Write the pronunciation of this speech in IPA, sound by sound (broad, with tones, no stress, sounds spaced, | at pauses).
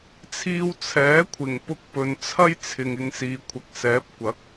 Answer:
t͡sʰ iː˧ w t͡sʰ ɛː˨˥ kʷʰ ɪ˨˩ ŋ p ʊ˧ k̚ p ɵ˨ n t͡sʰ ɐ˥ j t͡sʰ ɪ˨ ŋ ɪ˨˧ ŋ s iː˨˧ kʷʰ ɐ˨˥ k̚ s ɛː˨˥ p̚ kʷ ɐ˨˥ k̚